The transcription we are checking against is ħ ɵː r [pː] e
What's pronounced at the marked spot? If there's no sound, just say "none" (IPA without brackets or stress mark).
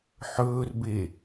b